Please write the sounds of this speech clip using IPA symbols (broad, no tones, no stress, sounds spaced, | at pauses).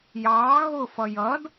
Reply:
j ɑː ɣ ʊ f ʌ j ʌ d